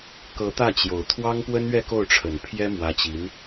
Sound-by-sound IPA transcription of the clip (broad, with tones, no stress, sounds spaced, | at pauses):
k ɤ˧˥ t̪ ä˥˩ t͡ɕ j o˨˩ ʊ̯ t̪ʰ w ɑ˥ ŋ p w ə˥ n ɥ ɛ˥˧ k o˥˩ ʊ̯ ʈ͡ʂʰ ə˨˩ n pʰ j ɛ˥ m w ä˧˥ t͡ɕ i˧˥ n